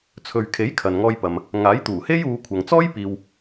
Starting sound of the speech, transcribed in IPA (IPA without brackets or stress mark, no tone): t͡sʰ